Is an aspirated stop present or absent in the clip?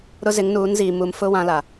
absent